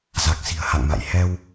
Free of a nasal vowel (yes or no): yes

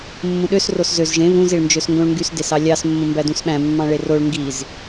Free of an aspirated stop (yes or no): yes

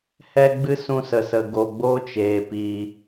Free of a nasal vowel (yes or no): no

